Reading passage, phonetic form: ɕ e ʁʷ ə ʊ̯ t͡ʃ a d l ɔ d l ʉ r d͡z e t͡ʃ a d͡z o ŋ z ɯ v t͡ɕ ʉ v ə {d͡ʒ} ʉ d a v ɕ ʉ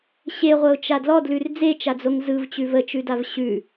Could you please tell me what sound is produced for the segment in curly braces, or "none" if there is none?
t͡ʃ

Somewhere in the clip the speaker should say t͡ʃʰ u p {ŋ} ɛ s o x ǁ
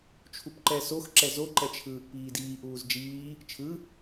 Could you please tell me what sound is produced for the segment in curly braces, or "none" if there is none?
ǃ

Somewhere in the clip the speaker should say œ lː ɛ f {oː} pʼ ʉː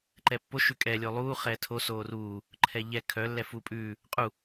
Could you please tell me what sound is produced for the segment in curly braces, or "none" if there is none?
uː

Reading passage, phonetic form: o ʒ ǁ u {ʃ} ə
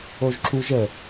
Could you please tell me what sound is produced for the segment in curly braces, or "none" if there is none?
ʒ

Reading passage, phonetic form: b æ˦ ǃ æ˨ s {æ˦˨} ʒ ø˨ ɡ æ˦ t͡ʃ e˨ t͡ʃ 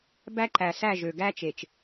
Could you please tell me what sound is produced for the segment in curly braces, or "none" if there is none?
æ˦˨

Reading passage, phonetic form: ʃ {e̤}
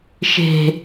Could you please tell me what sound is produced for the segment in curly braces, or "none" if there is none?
e̤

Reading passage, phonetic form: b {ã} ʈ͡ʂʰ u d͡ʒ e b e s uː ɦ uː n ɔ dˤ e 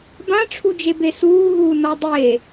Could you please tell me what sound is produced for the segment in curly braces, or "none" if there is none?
ã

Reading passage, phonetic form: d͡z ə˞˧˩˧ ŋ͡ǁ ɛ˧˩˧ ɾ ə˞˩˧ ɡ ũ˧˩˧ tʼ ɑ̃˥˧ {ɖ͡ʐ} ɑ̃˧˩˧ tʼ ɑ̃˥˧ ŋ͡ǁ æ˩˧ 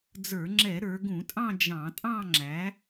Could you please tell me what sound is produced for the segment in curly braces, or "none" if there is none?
d͡ʒ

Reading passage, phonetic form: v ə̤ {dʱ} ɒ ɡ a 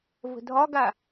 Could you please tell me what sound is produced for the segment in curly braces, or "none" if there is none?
dʱ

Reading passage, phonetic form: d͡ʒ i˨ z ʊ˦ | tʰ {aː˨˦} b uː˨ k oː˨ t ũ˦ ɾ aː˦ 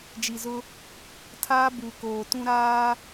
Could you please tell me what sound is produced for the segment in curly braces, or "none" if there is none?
aː˦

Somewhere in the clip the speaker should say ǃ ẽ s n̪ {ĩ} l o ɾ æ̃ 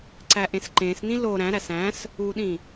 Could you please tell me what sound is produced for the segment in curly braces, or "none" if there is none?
ĩ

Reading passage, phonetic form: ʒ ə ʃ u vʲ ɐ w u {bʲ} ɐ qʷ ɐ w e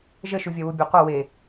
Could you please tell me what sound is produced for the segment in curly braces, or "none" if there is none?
bʲ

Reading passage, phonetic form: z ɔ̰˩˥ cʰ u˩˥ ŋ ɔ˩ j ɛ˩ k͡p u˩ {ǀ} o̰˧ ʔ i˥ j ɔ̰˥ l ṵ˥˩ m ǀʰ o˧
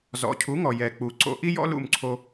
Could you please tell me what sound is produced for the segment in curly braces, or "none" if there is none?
ǀ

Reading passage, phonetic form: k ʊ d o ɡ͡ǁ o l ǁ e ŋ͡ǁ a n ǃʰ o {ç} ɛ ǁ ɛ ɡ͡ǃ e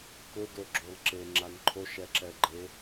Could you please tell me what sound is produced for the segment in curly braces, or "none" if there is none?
ʃ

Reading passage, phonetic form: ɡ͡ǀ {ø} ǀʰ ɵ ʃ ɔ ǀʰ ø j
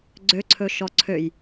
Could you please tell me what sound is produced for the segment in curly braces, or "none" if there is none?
ø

